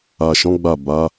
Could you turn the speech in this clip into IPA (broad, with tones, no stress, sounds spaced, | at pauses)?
a˨ ʃ ɔ̃˨˦ ɡ͡b a˦˨ b a˨˦